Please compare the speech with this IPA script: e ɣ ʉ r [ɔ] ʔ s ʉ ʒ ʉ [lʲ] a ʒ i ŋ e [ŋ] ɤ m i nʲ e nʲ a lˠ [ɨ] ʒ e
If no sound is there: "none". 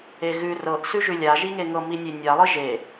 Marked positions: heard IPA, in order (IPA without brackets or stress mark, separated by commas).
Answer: ɤ, lʲ, ŋ, ɨ